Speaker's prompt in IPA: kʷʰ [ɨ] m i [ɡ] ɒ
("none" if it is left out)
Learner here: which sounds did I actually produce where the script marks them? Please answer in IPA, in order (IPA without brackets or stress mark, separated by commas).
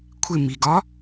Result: ɪ, ɡ